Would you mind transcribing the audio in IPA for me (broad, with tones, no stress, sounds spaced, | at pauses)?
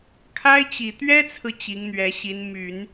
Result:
kʰ a˥ ɪ̯ t͡ɕ i˨˩ t̪ ɥ ɛ˥ t͡sʰ ɹ̩˨ t͡ɕ i˧˥ ŋ n̪ ɥ ɛ˧˥ ɕ i˧˥ n m y˨˩˦ n